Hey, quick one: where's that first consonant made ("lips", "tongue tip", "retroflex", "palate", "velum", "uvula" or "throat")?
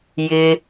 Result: palate